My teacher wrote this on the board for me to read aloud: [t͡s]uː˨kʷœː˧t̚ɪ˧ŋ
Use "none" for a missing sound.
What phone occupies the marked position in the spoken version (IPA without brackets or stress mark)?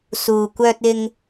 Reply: s